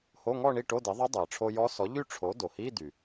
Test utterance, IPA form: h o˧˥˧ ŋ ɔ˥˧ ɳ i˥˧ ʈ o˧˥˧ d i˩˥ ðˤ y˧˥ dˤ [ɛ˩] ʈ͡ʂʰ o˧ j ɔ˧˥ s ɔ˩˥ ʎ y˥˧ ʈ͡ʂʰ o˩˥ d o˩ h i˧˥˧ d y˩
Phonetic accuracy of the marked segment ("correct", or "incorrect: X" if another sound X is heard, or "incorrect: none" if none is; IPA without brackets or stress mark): incorrect: ɜ˩